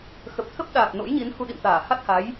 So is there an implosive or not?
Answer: yes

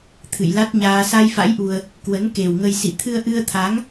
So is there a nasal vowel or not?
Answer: no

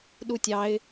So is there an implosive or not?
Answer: yes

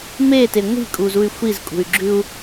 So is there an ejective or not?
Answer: yes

